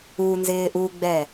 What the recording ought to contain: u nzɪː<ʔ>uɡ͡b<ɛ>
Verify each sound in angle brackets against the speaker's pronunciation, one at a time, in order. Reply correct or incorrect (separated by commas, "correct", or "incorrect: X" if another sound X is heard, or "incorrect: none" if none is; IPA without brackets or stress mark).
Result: correct, correct